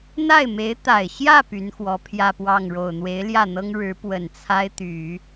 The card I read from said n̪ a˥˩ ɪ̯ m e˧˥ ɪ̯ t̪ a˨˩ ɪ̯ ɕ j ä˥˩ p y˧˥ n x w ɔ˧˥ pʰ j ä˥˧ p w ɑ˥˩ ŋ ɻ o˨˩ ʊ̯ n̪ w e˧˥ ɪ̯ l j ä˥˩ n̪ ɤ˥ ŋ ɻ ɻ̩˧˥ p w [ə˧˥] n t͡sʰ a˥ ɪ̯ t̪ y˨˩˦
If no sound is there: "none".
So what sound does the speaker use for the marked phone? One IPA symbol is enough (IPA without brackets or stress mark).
ə˨˩